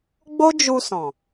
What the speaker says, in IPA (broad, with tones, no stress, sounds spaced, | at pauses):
ɡ͡b o˦ d͡ʒ u˧ s ɔ̃˨